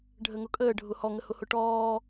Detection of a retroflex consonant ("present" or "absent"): present